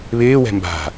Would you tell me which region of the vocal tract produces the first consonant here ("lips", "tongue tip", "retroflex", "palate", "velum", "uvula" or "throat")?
lips